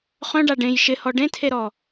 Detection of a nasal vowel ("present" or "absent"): present